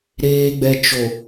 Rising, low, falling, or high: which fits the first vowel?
low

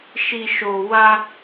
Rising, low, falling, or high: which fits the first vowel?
low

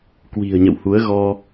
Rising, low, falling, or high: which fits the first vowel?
low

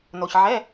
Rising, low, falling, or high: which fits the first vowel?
low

